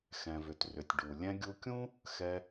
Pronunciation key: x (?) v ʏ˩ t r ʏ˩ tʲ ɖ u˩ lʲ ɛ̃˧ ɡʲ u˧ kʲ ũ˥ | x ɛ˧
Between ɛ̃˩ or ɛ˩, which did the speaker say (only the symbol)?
ɛ̃˩